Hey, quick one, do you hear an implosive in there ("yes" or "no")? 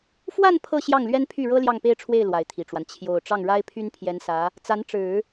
no